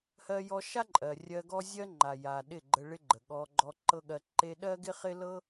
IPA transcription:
h ɜ˧ j ɔ˧ ʃ a˦ ǃʼ ɜ˨ rʲ ɜ˧ ɡ ɔ˦ zʲ ɜ˦ ŋ͡ǃ a˨ j a˨ ɗ ɪ˦˨ ɡ͡ǃ ə˧ ɭ ɪ˦ ɡ͡ǃ ə˨ ɠ ɔ˧ ɡ͡ǃ ɔ˧ ǃ ɤ˦ ɠ ɜ˧ ǃ e˧ ɗ ɜ˦ ɡ ɪ˦ χ ɪ˦ l ɤ˦

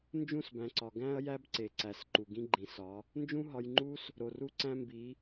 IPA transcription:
n d͡ʒ ũ˦˨ s b æ̃˨ ǀ ɒ˨ ɡ æ̃˦ ɐ̯ j æ˦ b ǀ e˨ ǀ æ˨ s ǃ u˨ ɡ ĩ˦ ɡ͡ǃ ĩ˨ s ɒ˨˦ | n d͡ʒ ũ˦ ɦ ɒ˧ j ŋ͡ǃ u˦ s | ɾ o˨ r u˦ ǀ æ̃˦ m b i˨˦

